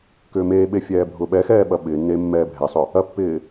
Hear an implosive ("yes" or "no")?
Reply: yes